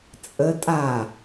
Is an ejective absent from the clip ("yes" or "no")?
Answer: no